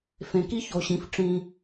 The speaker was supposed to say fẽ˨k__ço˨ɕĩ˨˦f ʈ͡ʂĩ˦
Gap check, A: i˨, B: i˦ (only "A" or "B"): B